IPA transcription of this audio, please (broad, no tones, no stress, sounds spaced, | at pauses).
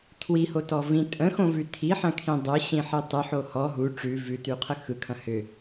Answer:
tʰ w i h o t ɔ v ĩ tʼ ə̃ x õ v ʉ tʰ i ħ ɐ̃ kʰ ĩ dˤ ɯ ɕ ĩ ħ i tˤ ɯ ħ o h ɔ ɦ u ʈ͡ʂ ʉ v ʉ t ʉ qʰ ə x ɯ kʰ ɐ̃ h ʏ